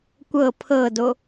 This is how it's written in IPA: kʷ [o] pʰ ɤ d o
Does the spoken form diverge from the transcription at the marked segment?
yes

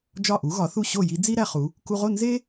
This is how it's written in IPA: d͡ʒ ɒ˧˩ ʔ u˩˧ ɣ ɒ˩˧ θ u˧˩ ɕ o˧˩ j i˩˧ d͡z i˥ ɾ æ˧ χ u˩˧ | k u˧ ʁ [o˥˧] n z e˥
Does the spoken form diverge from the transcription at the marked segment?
no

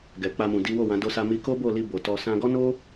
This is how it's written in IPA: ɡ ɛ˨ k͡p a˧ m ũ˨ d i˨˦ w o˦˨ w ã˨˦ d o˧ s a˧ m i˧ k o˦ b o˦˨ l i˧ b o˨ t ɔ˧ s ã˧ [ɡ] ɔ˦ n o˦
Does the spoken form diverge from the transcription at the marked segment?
no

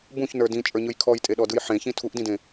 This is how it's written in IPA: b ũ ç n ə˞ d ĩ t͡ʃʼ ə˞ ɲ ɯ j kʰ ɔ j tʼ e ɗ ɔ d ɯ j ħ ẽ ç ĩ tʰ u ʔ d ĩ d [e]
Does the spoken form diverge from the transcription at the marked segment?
yes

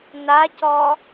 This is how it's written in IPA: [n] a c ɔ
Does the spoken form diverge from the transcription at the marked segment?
no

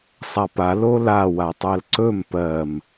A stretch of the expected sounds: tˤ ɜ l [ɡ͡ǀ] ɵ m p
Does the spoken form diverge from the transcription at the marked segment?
yes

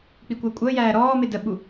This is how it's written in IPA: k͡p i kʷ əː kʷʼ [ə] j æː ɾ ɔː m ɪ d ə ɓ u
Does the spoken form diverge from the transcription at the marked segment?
yes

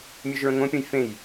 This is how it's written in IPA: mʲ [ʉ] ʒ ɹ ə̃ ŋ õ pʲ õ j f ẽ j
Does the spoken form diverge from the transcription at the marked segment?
no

